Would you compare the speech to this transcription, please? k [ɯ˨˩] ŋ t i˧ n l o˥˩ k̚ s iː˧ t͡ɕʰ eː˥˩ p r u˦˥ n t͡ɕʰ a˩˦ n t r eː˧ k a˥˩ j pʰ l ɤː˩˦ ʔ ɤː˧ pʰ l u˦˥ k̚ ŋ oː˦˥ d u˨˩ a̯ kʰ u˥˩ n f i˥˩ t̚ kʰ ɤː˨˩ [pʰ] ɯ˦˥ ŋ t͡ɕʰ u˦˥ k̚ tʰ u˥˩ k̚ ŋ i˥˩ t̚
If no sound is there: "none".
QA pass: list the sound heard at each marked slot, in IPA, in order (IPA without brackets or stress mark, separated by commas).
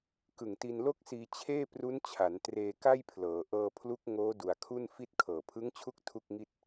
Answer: ɯ˨˩, pʰ